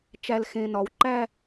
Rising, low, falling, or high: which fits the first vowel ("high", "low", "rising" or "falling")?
low